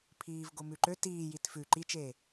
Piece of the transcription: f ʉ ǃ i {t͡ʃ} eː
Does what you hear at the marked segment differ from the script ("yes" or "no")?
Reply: no